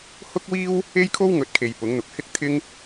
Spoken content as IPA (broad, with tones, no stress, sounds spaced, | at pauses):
h ʊ˥ k̚ w iː˥ w | e˥ j kʰ o˥ w ŋ ɵ˨˥ t̚ kʰ e˨ j p ʊ˨˥ ŋ n̪ ʊ˨˥ k̚ h ɪ˥ k̚ t̪ʰ ɪ˥ ŋ